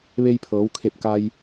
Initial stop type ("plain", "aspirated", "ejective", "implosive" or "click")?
aspirated